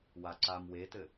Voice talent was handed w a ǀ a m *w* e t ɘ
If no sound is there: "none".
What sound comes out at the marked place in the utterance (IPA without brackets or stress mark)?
w